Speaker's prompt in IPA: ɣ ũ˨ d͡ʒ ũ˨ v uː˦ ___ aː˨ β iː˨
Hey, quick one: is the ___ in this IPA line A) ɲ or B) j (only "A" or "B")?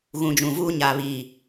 A